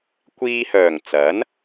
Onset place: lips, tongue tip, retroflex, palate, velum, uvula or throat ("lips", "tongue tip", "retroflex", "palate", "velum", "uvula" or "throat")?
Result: velum